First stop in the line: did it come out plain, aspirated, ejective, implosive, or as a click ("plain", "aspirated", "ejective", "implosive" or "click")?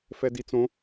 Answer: plain